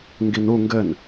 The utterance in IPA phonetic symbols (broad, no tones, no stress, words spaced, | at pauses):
ŋɡinu ŋɡɘn